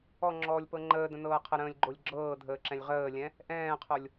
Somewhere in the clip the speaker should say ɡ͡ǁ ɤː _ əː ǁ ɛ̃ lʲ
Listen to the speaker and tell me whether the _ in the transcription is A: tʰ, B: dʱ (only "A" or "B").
B